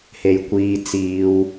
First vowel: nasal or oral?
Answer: oral